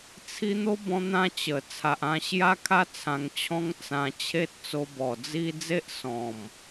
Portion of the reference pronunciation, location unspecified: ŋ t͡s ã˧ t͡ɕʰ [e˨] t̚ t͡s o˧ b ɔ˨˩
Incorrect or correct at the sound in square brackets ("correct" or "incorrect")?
incorrect